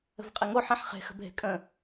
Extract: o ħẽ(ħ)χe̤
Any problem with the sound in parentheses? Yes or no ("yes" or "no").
no